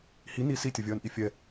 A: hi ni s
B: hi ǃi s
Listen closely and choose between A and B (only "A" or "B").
A